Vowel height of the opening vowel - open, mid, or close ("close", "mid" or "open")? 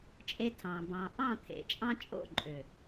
mid